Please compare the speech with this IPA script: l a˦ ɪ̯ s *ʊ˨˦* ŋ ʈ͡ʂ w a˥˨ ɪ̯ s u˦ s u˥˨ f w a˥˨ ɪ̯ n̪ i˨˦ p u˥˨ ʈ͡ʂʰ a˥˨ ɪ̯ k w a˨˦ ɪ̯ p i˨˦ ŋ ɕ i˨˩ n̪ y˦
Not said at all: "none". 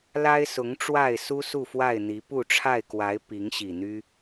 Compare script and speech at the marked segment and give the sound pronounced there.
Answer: ʊ˨˦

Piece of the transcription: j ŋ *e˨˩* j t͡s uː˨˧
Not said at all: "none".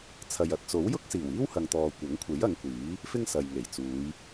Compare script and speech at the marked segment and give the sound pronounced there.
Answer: e˨˩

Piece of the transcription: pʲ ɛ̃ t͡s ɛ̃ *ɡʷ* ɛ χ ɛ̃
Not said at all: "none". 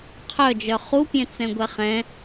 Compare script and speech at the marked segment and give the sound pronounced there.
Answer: ɡʷ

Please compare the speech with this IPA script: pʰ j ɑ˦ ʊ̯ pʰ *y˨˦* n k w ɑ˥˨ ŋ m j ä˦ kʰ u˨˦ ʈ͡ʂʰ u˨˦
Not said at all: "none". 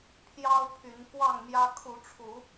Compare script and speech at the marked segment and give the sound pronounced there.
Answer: y˨˦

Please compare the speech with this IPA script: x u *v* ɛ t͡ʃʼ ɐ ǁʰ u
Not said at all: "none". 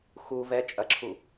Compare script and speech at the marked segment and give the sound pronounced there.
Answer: v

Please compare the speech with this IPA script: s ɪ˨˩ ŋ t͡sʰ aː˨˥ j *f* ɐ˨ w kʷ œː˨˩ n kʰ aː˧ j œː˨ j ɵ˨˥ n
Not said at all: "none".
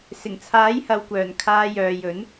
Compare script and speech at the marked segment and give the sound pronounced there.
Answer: h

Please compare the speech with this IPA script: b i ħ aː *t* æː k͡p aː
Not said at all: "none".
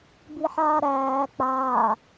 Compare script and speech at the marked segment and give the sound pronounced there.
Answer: ɾ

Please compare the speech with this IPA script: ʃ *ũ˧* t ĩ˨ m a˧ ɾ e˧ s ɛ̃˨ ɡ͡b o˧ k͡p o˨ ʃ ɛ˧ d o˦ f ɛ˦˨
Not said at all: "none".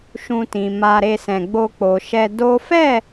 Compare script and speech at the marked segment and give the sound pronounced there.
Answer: ũ˧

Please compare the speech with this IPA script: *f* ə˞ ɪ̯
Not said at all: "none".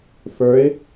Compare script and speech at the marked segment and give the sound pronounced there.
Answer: f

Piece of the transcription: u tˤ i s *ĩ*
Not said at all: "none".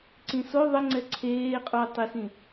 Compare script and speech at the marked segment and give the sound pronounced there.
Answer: ĩ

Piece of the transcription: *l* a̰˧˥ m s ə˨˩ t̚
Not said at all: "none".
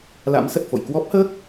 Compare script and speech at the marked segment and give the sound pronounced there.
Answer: l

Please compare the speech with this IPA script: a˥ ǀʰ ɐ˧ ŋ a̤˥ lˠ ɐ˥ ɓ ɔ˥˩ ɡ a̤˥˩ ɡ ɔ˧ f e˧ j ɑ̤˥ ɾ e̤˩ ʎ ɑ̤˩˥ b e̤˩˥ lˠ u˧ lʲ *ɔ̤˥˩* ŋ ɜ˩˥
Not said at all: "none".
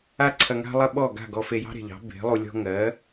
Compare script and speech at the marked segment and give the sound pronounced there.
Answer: ɔ̤˥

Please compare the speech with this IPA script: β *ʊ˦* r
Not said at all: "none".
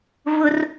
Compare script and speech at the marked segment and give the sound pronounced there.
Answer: ʊ˦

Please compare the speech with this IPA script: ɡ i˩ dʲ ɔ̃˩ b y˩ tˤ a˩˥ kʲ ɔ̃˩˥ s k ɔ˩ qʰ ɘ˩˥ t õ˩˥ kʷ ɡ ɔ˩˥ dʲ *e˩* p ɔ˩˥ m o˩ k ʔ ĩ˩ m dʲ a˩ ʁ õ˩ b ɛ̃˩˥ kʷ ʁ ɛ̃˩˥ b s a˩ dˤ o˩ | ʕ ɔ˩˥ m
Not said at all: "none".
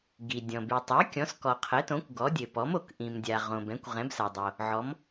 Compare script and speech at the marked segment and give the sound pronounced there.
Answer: ɘ˩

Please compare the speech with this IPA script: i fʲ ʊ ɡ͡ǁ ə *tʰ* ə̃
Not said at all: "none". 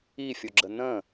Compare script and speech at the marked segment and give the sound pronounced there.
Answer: n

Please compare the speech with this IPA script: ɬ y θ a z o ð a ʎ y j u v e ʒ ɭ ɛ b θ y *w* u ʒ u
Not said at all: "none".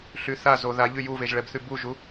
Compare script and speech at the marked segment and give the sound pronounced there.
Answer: b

